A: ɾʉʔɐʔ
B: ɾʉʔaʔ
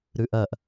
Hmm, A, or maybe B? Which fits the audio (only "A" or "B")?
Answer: A